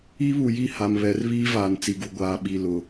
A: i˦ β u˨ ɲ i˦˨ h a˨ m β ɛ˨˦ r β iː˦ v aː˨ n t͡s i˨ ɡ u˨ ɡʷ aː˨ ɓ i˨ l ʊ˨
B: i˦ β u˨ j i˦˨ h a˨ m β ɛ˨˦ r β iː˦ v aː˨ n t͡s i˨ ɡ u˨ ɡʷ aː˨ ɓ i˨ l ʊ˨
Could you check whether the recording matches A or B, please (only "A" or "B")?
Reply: B